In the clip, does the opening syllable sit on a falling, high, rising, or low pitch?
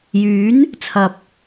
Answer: rising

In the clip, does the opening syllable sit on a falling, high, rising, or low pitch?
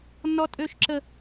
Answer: high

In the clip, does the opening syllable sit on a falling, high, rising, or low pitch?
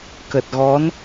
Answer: low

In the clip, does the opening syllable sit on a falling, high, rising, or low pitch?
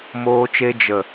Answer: high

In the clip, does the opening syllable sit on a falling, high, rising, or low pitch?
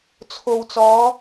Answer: low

